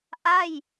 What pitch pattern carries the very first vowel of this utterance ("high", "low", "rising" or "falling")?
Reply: falling